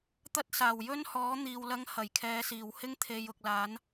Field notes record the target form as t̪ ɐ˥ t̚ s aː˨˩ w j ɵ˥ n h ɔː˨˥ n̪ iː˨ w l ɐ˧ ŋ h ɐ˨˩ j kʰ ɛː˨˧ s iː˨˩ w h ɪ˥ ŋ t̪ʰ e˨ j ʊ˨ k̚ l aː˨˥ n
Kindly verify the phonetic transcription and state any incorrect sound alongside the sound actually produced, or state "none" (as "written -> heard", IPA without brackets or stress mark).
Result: none